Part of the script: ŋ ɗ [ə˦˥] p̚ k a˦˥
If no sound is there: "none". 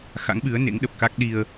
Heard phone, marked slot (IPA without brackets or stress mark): ə˨˩